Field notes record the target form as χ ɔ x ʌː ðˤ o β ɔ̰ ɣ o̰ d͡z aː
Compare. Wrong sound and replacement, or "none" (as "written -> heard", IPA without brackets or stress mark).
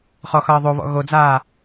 o̰ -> o